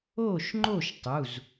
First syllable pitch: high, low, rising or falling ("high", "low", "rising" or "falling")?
falling